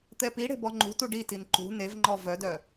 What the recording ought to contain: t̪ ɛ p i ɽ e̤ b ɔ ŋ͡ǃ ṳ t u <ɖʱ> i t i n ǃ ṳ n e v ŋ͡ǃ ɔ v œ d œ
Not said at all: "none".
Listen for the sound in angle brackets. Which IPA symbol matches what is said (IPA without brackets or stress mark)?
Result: ɖ